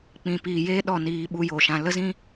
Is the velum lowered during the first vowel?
yes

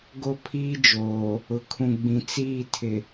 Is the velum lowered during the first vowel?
no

